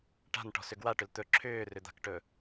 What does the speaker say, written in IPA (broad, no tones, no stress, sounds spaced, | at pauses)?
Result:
ʈ a̤ n ʈ ɔ̤ s ʏ ɡ w a ʈ ʏ l t̪ ɵ ǁʰ ʏː r ʏ d̪ a̤ k ʈ ɵ